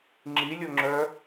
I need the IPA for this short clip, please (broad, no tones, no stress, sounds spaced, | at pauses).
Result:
ŋ͡ǁ i lʲ o ŋ͡ǁ œ